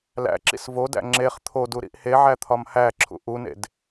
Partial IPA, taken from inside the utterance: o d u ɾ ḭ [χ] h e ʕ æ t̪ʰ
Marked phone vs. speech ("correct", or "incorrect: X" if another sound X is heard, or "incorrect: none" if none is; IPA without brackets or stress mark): incorrect: ʔ